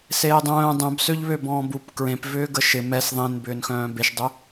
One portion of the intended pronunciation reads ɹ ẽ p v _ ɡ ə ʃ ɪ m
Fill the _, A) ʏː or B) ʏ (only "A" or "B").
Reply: A